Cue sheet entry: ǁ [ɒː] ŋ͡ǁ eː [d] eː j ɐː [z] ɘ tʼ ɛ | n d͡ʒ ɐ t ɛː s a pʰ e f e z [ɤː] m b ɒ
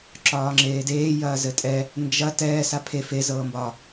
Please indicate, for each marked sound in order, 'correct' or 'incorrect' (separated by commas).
correct, correct, correct, correct